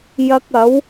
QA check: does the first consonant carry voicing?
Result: yes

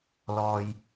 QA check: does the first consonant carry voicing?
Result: yes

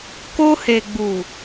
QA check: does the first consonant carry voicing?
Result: no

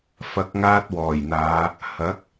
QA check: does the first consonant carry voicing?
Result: no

